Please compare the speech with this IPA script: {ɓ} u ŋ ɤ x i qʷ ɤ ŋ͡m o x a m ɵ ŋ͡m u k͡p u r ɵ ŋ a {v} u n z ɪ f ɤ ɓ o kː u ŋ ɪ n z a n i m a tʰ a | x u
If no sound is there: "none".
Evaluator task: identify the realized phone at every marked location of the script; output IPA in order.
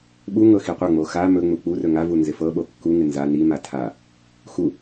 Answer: ɓ, v

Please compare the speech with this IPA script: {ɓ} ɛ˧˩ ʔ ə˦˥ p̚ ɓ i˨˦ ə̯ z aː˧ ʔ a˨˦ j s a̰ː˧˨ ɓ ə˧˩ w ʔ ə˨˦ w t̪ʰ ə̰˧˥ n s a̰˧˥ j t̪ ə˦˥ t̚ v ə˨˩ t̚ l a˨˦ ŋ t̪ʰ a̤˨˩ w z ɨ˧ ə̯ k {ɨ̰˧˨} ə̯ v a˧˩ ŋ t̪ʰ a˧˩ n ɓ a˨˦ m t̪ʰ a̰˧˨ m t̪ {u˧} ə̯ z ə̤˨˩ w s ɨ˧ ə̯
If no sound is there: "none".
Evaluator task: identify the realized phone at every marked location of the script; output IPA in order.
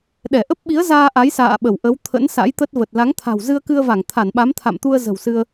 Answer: ɗ, ɨ˧, u˧

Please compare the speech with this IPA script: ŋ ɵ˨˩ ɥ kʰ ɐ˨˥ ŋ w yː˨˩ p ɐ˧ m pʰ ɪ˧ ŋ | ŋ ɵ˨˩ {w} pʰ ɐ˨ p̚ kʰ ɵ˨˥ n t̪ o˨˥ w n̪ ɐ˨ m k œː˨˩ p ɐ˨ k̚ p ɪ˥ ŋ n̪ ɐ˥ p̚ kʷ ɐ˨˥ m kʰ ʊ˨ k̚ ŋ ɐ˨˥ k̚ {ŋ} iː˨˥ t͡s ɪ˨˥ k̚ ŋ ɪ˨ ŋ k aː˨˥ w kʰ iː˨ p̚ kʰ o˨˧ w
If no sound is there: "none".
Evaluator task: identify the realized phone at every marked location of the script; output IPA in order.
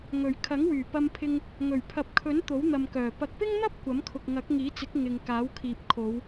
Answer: ɥ, ŋ

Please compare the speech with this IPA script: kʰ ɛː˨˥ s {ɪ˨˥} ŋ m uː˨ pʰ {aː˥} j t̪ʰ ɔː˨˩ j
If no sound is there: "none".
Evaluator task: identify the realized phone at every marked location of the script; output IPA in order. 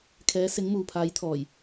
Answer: ɪ˨˥, aː˨˥

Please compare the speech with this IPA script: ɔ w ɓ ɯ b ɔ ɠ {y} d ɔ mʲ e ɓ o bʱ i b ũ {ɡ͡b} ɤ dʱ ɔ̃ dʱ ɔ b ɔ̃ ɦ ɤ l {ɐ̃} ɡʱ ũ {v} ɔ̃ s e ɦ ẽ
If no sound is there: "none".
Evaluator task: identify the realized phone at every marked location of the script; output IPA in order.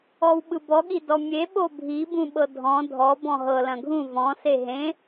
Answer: i, ɓ, ɐ̃, v

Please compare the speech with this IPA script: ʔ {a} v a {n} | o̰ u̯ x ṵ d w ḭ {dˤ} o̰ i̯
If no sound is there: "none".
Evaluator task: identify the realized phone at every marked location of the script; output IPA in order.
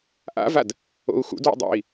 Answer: a̰, d, dˤ

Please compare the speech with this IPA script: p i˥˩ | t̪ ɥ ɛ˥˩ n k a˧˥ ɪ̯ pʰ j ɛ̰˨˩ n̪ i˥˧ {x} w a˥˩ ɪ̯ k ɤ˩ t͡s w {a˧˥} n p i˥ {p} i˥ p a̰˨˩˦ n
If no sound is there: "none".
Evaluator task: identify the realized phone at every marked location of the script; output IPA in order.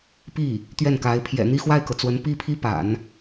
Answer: x, ə˧˥, pʰ

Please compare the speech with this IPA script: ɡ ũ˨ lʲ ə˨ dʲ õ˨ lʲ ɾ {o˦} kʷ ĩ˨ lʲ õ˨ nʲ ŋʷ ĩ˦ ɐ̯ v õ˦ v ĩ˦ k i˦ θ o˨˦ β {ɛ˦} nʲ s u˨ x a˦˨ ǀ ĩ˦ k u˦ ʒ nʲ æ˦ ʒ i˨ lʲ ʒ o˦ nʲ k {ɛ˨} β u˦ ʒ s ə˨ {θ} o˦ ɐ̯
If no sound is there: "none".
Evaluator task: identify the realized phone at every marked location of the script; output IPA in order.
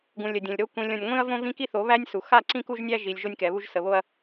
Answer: o˦, æ˦, ɛ˨, β

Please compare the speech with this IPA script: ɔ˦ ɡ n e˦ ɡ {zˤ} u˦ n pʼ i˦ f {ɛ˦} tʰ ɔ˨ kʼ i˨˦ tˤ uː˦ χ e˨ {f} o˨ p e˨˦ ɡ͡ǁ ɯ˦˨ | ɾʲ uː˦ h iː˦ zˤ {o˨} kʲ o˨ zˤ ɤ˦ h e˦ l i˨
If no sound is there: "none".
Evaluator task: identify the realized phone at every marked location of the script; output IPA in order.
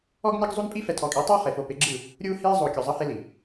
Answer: zˤ, ɛ˨, f, o˨

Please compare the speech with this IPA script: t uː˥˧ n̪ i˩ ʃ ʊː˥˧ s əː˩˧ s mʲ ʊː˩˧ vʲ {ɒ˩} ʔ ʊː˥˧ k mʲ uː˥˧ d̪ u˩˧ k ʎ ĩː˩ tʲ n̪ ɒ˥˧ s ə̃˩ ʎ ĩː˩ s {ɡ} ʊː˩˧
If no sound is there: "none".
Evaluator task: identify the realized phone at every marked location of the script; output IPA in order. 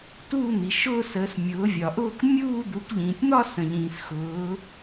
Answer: ɒ˩, x

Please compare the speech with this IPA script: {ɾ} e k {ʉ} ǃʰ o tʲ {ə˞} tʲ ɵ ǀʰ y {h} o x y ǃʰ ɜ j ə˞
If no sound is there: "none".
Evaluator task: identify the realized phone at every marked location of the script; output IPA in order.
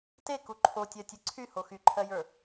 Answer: t, u, ɜ, h

